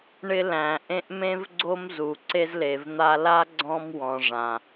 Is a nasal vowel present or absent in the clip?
present